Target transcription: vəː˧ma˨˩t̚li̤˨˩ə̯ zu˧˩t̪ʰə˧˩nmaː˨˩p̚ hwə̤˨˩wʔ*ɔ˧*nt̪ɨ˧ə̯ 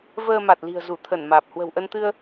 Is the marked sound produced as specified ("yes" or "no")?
no